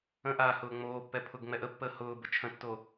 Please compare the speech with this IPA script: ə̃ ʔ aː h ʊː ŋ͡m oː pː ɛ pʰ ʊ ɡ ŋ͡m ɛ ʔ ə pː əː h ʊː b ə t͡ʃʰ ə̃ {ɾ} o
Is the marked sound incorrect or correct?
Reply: incorrect: tː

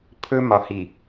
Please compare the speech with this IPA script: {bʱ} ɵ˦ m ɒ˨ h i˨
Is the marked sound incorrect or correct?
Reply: incorrect: pʰ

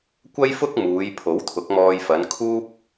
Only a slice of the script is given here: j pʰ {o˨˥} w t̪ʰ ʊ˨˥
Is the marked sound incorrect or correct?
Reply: correct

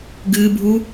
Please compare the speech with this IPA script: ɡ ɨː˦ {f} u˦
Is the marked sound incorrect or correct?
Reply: incorrect: bʱ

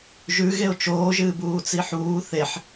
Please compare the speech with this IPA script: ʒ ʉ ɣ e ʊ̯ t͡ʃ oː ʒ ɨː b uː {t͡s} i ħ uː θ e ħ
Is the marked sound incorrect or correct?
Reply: correct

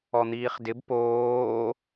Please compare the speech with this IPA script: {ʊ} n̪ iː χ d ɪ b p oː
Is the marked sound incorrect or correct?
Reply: incorrect: ɔ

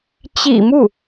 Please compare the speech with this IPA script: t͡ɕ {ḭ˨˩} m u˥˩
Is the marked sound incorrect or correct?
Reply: correct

